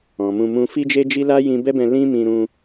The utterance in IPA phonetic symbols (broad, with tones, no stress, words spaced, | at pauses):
ɔ̃˨mũ˧mũ˦ fi˦d͡ʒe˦d͡ʒi˦ la˦ jĩ˧bɛ˦bɛ̃˧ lĩ˦mĩ˧ɾũ˧